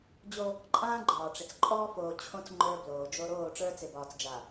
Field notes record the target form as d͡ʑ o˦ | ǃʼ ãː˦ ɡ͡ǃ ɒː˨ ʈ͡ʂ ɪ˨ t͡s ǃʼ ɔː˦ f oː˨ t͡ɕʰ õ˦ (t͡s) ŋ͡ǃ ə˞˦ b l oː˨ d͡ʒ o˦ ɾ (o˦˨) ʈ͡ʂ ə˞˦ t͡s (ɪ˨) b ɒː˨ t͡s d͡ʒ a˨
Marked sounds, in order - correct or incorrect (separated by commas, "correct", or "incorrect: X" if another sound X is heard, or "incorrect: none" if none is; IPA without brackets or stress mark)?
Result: correct, incorrect: oː˦˨, correct